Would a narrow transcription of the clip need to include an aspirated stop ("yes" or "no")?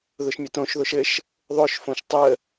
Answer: no